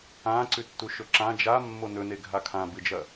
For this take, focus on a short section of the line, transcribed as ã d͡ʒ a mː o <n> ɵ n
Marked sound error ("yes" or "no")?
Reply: no